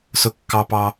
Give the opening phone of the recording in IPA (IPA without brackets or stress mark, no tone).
s